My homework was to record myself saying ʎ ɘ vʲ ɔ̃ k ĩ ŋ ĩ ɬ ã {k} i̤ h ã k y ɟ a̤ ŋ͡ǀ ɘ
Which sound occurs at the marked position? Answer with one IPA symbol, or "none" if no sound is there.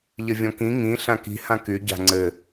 k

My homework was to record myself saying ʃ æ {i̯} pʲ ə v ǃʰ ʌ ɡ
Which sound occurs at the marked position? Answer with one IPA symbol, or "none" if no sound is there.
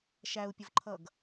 u̯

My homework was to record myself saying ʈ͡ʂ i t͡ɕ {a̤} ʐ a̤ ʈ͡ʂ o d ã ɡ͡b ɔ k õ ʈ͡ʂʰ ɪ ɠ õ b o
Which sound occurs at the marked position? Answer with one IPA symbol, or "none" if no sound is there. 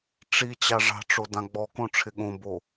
a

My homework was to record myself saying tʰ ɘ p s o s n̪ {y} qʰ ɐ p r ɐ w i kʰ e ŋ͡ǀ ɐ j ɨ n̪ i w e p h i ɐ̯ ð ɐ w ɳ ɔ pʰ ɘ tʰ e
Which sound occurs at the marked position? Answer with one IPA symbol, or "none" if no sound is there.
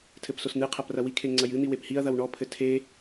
ɨ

